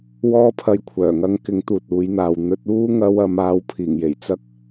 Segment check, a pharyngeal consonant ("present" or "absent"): absent